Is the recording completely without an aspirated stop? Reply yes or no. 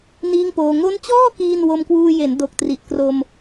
yes